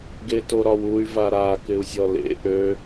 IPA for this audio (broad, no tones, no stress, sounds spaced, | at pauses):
ɡ e t o ɾ ɒ w u y̯ v a ɾ a k ɪ u̯ zʲ ɔ l ḛ ʔ ø